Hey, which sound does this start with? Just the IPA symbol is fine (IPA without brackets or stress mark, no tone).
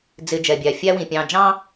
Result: d͡z